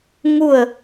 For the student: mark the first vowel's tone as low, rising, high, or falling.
falling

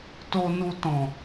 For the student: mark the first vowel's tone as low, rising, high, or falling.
low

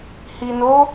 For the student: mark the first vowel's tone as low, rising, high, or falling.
low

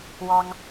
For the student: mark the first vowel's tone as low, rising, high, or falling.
high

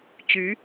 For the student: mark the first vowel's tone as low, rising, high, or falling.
rising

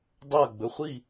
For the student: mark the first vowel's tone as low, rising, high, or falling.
falling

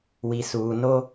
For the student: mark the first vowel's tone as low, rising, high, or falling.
low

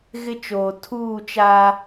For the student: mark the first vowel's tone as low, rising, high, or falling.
high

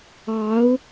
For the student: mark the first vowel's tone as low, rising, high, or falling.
rising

